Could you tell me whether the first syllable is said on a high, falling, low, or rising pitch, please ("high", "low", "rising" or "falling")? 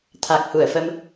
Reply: low